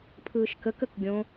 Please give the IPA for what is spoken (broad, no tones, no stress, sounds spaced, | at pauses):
pʰ ɯː ʃ k ə k ə k ɡʲ õ